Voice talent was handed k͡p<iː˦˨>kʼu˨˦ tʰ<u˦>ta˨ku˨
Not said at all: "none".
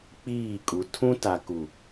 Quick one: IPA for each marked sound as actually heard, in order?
iː˦˨, ũ˦

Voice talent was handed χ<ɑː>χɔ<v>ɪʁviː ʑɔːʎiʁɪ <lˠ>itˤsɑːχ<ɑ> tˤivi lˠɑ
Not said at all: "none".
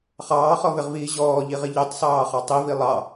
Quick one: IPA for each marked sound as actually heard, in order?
ɑː, v, ʎ, ɑ

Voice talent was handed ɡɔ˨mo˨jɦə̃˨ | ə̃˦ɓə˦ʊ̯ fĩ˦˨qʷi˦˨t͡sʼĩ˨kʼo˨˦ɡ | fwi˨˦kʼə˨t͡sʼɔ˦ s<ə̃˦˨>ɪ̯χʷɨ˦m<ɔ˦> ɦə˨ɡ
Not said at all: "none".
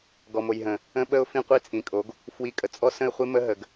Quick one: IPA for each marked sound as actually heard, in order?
ə̃˦˨, ə˦

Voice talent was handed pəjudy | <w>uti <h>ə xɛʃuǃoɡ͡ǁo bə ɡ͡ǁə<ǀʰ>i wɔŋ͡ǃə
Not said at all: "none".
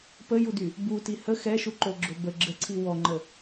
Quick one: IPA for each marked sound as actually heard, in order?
b, h, ǀʰ

